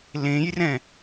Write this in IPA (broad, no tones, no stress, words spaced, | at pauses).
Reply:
lẽjrɛ̃